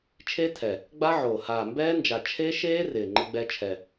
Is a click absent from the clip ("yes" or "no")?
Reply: no